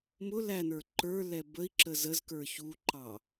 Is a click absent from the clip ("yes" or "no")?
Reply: no